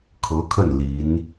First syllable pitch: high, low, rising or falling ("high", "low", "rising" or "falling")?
rising